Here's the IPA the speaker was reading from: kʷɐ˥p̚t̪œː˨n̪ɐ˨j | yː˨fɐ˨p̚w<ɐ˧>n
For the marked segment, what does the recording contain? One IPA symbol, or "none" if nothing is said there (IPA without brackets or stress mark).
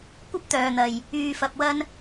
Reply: ɐ˧